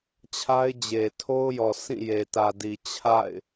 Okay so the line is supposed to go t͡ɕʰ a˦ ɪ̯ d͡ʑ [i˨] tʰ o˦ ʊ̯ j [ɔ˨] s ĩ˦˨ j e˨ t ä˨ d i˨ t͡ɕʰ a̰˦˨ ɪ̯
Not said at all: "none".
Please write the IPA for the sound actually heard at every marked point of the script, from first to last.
e˨, ɔ˨

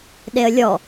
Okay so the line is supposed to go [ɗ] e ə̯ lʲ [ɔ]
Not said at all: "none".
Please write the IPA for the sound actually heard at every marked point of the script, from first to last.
ɗ, ɔ

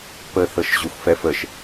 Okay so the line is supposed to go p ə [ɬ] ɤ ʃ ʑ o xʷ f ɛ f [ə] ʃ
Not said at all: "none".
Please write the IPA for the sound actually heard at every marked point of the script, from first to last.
θ, ə

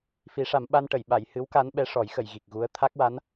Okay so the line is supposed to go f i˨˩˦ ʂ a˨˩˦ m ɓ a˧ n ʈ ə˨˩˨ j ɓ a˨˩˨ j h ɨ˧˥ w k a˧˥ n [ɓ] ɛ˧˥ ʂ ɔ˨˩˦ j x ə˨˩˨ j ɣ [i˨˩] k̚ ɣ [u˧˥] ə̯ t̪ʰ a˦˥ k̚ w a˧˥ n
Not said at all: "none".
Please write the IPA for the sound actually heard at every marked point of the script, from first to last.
ɓ, i˨˩, u˧˥

